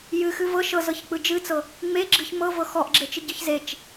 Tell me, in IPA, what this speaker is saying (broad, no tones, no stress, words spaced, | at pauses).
jɨxɨv ɤ ʃɤzɤçk͡pɯ d͡ʒɨt͡sɤ | ŋ͡meɡ͡ǁɨç mɤvɤ xɔʔɡ͡ǁet͡ʃɨɟɯç zet͡ʃ